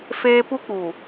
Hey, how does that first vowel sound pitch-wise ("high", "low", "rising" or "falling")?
high